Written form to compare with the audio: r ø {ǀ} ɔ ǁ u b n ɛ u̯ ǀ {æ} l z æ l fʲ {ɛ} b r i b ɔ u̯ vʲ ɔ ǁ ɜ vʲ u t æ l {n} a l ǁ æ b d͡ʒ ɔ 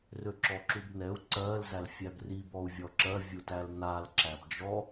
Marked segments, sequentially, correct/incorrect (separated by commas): incorrect, incorrect, incorrect, correct